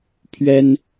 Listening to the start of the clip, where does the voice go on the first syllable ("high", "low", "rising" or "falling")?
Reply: high